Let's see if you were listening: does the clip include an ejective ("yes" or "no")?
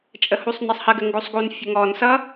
yes